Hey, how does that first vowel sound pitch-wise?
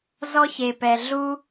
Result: high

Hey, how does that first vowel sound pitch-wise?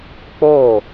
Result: falling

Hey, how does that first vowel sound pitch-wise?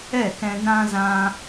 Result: falling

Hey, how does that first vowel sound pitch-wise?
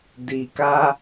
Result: low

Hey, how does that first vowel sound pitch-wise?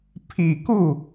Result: low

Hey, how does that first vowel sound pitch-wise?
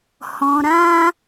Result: low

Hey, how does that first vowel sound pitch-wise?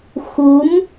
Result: rising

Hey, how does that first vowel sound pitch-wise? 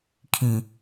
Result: low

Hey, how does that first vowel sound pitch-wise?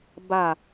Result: falling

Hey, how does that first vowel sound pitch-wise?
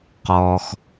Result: low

